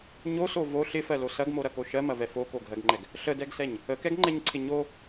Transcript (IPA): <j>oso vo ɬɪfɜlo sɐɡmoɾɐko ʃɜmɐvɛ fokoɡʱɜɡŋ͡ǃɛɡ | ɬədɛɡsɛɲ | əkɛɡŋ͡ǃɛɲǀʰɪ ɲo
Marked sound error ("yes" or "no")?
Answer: yes